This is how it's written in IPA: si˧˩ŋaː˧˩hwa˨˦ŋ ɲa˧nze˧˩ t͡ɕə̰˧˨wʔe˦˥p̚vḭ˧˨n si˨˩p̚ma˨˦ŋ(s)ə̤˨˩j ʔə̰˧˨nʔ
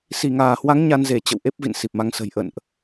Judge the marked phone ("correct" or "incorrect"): correct